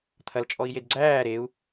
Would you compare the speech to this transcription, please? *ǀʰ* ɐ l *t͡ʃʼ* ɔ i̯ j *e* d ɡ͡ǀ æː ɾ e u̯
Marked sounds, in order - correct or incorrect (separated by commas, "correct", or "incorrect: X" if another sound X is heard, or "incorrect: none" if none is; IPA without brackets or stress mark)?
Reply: incorrect: t̪ʰ, correct, correct